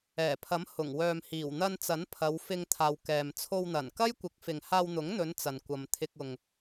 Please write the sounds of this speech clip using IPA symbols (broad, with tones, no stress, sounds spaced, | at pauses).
ɛː˨˩ pʰ ɐ˨˥ m h ʊ˨˩ ŋ w œː˨ m h iː˨˩ w n̪ ɐ˧ n t͡s ɐ˨˥ n pʰ ɐ˨˧ w f ɪ˧ ŋ t̪ʰ aː˨ w k ɛː˨ m t͡sʰ o˧ w n̪ ɐ˨˩ n k ɐ˥ j kʷ ɪ˨˥ k̚ f ɪ˨ ŋ h aː˧ w n̪ ʊ˨˥ ŋ n̪ ɵ˨˧ n t͡s ɐ˨ n kʷ ɐ˨ m t̪ʰ ɪ˧ k̚ ʊ˨ ŋ